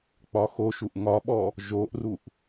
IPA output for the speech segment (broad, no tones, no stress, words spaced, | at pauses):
k͡pɒxoʃuʔ ŋɒɓɔ | ʒoʔruʔ